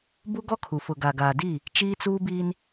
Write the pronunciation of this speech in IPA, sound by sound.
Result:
b u˦ ɡ ɔ˦ kʰ u˨ f ʊ˨ ɡ a˨ ɡ aː˨ d i˦˨ | t͡ʃ iː˦ t͡s uː˦ b iː˦ n

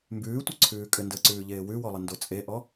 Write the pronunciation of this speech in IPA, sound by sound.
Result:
m b ʉː tʷ œ ǀʰ ʉː kʼ ɘ n d əː ǀ ʉː ʎ eː w ʉ w ɔ lˠ ə n d o t͡sʼ e ʔ ɔ

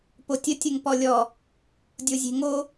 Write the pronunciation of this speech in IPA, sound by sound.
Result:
p o tʲ ə tʲ ə ŋ p ɔ lʲ ɔ | dʲ o zʲ e̤ ŋ o

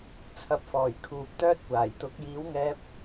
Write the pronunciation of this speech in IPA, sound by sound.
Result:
t͡sʰ ɐ˨ p̚ f ɔː˨˩ j kʰ uː˨ p̚ t̪ œː˥ t̚ kʷ aː˨˩ j t̪ ʊ˨˥ k̚ j iː˨˥ w ŋ ɛː˧ p̚

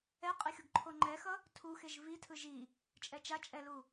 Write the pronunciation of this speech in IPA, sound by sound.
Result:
ɛ qʼ e xʲ o ɡ ǃʰ o ŋ͡ǃ ɛ x ʌ | tʰ u x e ʒ v i tʰ ɯ ʒ i | t͡ʃʼ ɛ t͡ʃ a t͡ʃʼ ɛ l u

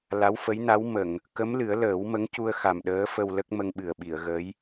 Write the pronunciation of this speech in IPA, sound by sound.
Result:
l a˧˥ w f ə˧˥ j n a˧˥ w m ə˨˩˨ ŋ | k ə˧˥ m l ɨ˨˩˦ ə̯ l əː˨˩˦ w m ə˧˥ ŋ c u˧ ə̯ x a˨˩ m ɗ əː˧˥ f ə˧ w l ə˦˥ k̚ m ə˧ ŋ ɓ ɨ˨˩ ə̯ ɓ i˨˩˨ ə̯ ɣ ə˧˥ j

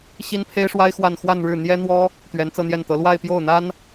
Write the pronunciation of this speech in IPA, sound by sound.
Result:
ɕ i˥ n pʰ e˥ ɪ̯ ʂ w a˥ ɪ̯ x w a˥˧ n x w a˥˧ n ɻ ɻ̩˥˩ n̪ j ɛ˥ n̪ w ɔ˥ | t̪ ɥ ɛ˧˥ n t͡s ɤ˥˧ n̪ j ɛ˥˩ n t̪ ɤ˧˥ l w a˥˧ ɪ̯ p j o˥˩ ʊ̯ n̪ a˥ n

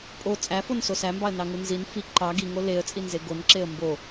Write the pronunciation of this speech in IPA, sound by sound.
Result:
pʼ o t͡sʼ æ f o n s o s æ m b ɑ ə̯ n ɑ ŋ u n z i n f i ǃ ɑ ɡ i ŋ o l e ə̯ t͡sʼ i n z e ɡ o n ǁ e ə̯ m b o

